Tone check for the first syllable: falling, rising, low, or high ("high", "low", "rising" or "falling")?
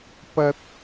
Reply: high